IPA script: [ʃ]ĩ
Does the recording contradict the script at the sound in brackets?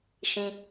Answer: no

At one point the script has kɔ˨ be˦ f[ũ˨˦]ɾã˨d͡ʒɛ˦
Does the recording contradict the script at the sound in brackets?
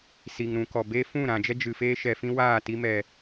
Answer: yes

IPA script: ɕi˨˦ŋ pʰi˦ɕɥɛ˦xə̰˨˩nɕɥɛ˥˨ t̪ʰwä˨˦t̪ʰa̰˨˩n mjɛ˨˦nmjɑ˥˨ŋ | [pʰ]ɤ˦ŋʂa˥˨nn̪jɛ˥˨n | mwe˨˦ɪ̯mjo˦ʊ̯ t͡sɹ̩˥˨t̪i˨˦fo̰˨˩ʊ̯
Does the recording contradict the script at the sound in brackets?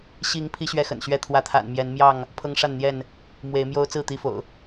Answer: no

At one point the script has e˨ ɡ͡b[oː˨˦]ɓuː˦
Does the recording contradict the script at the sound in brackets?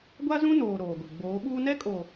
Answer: no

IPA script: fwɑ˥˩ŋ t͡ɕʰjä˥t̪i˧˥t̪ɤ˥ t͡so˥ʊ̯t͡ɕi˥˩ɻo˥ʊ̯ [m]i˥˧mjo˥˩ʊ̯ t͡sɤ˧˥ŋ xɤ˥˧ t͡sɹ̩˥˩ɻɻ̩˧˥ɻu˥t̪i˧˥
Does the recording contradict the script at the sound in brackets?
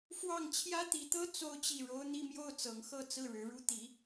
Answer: yes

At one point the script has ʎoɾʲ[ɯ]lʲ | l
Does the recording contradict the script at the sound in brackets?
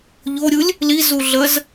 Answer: no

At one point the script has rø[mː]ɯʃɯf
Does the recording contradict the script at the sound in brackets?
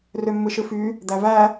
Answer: no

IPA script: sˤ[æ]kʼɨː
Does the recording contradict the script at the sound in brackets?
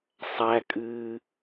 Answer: no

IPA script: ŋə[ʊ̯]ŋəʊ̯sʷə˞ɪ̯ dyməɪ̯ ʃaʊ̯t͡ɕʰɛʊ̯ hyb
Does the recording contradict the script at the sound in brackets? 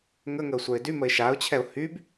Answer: yes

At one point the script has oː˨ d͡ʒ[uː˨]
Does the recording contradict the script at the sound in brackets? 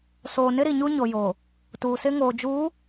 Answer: yes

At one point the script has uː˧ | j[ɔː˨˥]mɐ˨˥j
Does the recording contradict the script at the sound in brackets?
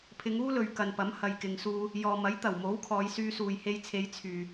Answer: yes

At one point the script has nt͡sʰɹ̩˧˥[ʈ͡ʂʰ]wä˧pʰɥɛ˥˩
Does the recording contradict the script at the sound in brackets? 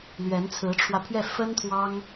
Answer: no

